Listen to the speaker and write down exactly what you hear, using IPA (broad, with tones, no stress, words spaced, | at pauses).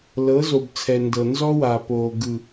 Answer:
lɤ˨˦zo˨bt͡sʰɛ˨ ndɤ˨ nzɔ˦wa˨poː˨ ɡɯ˨